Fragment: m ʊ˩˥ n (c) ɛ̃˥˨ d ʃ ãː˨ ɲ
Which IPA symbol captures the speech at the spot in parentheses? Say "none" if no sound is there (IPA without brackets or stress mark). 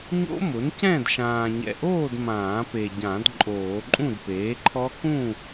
c